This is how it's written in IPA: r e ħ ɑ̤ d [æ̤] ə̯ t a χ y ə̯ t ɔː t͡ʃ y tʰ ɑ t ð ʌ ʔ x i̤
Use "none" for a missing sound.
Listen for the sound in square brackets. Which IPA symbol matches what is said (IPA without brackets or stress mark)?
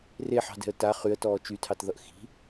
ɛ̤